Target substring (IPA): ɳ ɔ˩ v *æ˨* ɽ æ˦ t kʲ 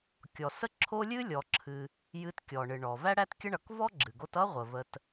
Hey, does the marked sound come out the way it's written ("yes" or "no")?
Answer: no